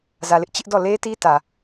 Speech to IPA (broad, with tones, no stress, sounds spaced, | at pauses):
z ä˨ l ɪ˦ ʔ t͡ɕ ɪ˦ ʔ d ɔ˦˨ l e˦ t i˦ t ä˨